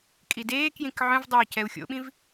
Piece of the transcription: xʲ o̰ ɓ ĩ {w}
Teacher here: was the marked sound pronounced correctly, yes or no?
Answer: no